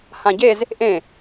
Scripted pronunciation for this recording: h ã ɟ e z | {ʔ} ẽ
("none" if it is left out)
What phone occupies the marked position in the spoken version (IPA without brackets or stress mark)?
ʔ